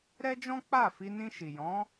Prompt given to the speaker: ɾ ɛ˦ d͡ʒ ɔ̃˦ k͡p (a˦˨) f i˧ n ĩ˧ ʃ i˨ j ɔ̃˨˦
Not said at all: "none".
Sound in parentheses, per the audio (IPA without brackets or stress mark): a˦˨